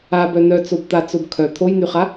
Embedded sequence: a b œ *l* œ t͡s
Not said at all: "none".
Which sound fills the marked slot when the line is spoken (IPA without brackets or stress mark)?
n